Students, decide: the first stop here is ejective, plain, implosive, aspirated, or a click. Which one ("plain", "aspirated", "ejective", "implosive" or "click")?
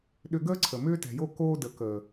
implosive